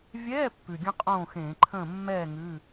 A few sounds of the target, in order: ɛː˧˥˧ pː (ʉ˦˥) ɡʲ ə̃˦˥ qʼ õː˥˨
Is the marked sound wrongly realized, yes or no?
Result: yes